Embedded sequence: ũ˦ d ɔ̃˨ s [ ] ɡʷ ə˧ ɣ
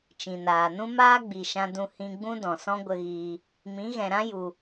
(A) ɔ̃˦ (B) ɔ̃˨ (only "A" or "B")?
A